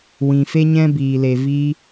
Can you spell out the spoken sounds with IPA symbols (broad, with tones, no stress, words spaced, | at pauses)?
wĩ˨fe˦ɲɛ̃˦ biː˨le˨ viː˦